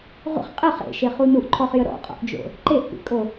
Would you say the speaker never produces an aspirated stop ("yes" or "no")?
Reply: no